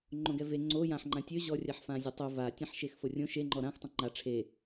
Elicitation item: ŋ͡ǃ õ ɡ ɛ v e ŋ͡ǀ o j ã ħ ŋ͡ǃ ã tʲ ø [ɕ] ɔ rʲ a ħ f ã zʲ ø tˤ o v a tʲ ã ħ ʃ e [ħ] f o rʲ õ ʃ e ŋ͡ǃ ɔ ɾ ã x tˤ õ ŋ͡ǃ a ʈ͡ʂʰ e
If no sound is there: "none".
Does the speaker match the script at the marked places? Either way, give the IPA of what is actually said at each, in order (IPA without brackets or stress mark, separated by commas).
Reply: ʑ, x